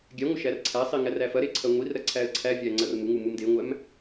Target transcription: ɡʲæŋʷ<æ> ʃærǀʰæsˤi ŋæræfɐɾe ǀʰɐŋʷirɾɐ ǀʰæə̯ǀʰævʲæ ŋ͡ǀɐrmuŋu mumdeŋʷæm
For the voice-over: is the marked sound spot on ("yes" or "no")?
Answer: no